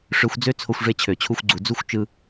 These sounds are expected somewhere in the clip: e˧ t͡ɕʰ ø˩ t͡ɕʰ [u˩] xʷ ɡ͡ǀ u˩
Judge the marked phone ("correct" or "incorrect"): incorrect